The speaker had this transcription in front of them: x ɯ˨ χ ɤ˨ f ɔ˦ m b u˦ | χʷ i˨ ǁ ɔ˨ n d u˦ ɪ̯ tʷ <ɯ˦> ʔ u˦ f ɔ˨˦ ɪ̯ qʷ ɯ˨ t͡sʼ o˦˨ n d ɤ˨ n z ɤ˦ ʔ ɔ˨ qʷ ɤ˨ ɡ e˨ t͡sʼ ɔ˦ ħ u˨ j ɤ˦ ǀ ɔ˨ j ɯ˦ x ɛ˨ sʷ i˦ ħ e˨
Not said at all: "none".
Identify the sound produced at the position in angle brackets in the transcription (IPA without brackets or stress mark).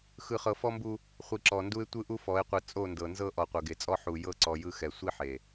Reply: ɯ˦